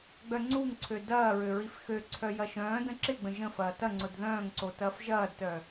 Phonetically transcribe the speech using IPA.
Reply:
ɡ͡b œ ŋ͡ǀ u ŋ ǀʰ ø d ɐː ɹ ø ɹ i f x ø ǀʰ œ j ɐ ʃ œ̃ː d ə̃ ǁ ɪ ɡ͡b ə̃ ʒ ə̃ f ɐː t ɐ ŋ͡ǀ ʊ d ð œ̃ː ŋ ǀ o t ɐː f ʒ ɐː d t œ

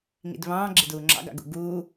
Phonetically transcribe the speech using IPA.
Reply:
ŋ ḭ d β ɑ̃ː ɡ͡ǁ ɪ d uː ŋ͡ǁ ɑ̰ ɡ ɑ̰ ɡ ṵ ɡ uː

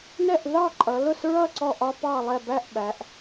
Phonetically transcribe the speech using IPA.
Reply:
n ɛ˥˩ ʔ ð ɑ˥˩ ǃʼ ʌ˩˧ l ʊ˥˩ s ɹ ʌ˥˩ ǀ ɔ˥˩ ʔ ɒ˦ p ɑ˥˩ lˠ ɛ˥˩ b æ˥˩ ʔ ɓ æ˩˧ ʔ

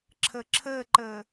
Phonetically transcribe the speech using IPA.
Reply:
ǁʰ ɘ ǁʰ ɘ ǃ ɘ

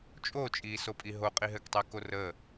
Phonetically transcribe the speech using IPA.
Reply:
t͡ʃʼ o t͡ʃʼ iː s o pʼ i ɦ o qʼ i ɦ ɘ k tˤ ɛ k o r ə

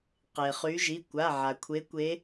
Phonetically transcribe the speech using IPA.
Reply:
q e˩ χ y˨˦ ʒ i˩˧˩ kʷ a˩˧˩ ʕ a˩ kʷʰ e˨˦ kʷ e˨˦

